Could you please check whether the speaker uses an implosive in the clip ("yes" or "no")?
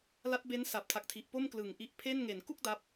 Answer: no